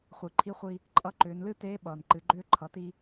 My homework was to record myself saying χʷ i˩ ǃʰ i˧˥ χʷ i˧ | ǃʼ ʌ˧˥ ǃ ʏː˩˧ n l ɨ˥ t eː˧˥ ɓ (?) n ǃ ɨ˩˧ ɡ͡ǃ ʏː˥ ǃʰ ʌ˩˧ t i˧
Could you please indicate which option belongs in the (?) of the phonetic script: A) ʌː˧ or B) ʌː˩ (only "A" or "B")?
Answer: B